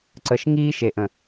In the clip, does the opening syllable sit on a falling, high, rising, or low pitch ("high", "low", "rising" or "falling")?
low